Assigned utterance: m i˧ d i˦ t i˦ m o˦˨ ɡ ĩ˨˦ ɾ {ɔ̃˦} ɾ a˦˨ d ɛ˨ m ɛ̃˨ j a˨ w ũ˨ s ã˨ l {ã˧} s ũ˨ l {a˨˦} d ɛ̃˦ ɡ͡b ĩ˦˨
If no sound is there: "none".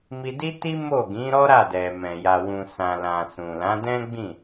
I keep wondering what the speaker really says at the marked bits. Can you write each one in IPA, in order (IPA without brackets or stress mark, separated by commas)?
ɔ˦, ã˨, ã˨˦